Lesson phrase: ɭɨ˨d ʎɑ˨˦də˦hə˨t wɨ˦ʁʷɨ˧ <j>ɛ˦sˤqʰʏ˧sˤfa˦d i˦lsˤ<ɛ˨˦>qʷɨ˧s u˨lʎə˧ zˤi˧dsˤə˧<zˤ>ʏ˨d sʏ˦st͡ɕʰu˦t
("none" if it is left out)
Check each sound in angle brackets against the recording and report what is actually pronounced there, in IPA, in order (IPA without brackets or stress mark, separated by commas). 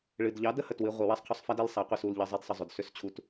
w, ɛ˨˦, zˤ